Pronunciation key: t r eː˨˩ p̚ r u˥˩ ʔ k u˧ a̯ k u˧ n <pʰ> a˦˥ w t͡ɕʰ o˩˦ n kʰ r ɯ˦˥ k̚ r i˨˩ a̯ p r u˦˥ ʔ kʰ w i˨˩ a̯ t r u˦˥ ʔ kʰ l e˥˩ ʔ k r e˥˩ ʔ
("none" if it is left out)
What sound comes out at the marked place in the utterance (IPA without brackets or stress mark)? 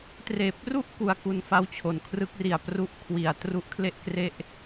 f